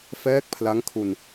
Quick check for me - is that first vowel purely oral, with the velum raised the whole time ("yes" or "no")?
yes